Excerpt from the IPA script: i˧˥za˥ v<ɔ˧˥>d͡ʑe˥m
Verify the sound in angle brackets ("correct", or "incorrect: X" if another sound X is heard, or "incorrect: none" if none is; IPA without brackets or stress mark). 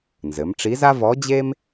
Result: correct